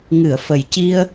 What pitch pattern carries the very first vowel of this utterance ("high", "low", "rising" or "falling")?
low